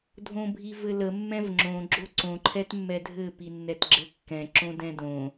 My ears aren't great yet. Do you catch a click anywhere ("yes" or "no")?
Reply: yes